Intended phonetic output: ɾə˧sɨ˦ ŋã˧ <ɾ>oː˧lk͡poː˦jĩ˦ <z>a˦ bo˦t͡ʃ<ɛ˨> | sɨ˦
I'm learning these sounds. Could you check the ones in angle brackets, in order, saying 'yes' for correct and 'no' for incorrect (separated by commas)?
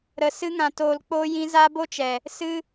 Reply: no, yes, yes